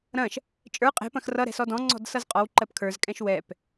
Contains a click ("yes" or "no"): yes